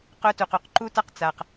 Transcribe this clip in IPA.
qœ˦tu˨q u˨qǃu˦ta˦q t͡sa˨q

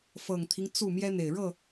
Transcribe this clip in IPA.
fɤ˨˩ŋt̪ʰi˦ŋ t͡su˥˨ mjɛ˦n̪e˨˩ɪ̯ɻɤ˥˨

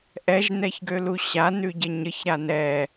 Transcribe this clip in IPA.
ʔɛʒnɛçɡølu ɕanʉɟə ɲəçɾa nɛ

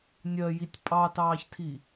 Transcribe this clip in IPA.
nʲɜjitʲ pʼɑtɑːçtʰi

